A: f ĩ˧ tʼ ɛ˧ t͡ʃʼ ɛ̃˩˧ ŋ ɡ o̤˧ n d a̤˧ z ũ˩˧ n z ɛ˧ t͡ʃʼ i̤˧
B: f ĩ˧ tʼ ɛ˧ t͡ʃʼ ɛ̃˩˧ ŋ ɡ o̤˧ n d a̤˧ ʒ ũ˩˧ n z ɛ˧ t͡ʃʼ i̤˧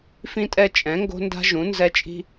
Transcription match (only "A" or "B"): B